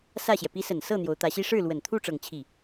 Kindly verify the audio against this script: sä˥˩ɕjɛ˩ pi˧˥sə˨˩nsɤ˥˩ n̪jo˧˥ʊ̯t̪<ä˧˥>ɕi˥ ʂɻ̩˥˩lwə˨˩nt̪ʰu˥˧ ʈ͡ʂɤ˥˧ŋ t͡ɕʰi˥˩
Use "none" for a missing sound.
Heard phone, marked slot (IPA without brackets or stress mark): ä˧˥